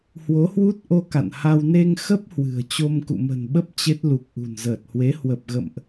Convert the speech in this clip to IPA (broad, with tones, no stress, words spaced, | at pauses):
hwo˨˦hwu˦˥t̚ʔo˧ ka̰˧˨nha˧w ne˧ŋxə˦˥p̚ hwɨ̤˨˩ə̯ t͡ɕo˧mkṵ˧˨mə̤˨˩nɓə˦˥p̚ t͡ɕe˦˥t̚ lu˨˩k̚ʔṳ˨˩nzəː˨˩t̚hwe˨˦ hwə˨˩p̚ ɣə̰˧˨mʔ